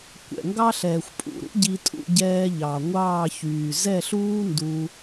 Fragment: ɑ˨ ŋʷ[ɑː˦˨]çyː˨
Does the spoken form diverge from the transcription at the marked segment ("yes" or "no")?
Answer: no